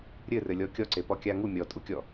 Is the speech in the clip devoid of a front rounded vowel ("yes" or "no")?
yes